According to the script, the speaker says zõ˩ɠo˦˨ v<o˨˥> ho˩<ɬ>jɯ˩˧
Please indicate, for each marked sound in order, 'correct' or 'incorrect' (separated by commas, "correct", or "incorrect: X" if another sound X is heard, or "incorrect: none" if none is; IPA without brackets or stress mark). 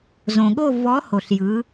incorrect: ɔ˨˥, correct